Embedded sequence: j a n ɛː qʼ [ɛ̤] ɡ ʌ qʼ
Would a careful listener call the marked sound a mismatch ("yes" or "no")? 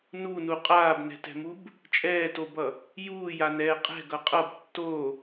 no